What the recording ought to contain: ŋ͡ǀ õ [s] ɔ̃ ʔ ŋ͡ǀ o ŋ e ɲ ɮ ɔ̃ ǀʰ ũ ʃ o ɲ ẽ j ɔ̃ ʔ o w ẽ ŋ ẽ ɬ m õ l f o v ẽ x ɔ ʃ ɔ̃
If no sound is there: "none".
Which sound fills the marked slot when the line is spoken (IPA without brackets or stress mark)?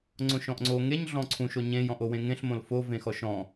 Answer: ʃ